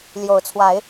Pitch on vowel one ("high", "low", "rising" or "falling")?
rising